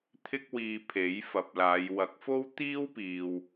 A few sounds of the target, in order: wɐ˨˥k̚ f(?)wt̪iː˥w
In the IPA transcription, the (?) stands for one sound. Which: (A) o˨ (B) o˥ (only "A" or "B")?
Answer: B